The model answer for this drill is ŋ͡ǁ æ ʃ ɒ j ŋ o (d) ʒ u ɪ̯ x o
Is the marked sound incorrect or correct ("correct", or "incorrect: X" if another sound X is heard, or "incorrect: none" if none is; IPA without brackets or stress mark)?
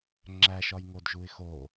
correct